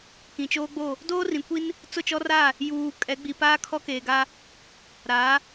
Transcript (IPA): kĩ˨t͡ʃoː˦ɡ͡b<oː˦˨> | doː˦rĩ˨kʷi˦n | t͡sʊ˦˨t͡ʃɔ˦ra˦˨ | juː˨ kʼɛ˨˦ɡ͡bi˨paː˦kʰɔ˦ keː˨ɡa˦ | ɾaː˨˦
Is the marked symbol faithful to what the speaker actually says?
no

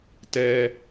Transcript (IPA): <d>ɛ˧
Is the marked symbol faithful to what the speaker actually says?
no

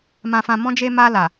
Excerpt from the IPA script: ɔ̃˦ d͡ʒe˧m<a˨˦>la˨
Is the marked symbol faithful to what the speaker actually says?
no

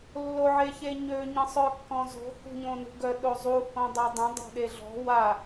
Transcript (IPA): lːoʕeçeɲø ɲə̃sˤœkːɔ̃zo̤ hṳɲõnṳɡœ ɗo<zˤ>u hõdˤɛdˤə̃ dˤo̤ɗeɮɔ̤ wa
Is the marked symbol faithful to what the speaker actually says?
yes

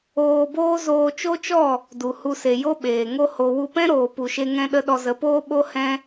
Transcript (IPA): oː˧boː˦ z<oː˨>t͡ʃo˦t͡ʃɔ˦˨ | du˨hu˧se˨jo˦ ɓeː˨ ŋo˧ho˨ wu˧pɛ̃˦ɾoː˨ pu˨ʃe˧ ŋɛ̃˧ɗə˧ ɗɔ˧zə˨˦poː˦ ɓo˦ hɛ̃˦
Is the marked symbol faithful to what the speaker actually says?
no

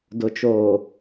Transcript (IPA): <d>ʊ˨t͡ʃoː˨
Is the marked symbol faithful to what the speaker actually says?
yes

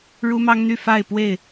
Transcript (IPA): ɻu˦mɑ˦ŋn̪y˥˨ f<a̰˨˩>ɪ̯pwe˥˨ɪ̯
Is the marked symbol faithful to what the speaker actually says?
no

